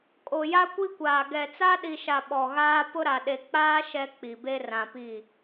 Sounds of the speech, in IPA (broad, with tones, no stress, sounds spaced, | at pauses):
kʼ o˨ j a˦ kʷ i˦ kʷ aː˨ ɡ ɛ˨ t͡s a˦ ɗ i˨ ʃ a˨ ɓ ɔ˨ ɣ aː˦ p ʊ˦ ɾ a˨ ɗ e˨ k͡p aː˦ ʃ ɛ˦ k͡p i˨ b e˦ r ã˨ p i˦˨